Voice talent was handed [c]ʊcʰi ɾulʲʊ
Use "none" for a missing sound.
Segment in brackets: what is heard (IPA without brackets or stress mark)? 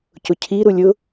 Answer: c